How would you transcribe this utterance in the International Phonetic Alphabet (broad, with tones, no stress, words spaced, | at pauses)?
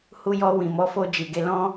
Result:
hu˧jɔ˧ wĩ˨mɔ˨˦ fo˧ d͡ʒi˨ɡe˧lɔ̃˦